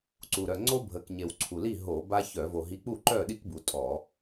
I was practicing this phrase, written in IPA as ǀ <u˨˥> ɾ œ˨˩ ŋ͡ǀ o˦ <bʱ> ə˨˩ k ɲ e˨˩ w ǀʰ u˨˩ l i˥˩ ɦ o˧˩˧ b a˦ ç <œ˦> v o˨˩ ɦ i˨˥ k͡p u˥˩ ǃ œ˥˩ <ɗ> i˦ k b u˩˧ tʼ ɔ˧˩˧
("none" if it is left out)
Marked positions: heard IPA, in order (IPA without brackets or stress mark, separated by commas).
u˨˩, bʱ, œ˧˩˧, ɗ